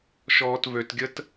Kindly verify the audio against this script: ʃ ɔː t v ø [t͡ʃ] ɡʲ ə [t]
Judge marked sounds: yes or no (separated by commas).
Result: no, yes